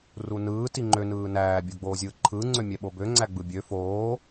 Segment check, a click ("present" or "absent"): present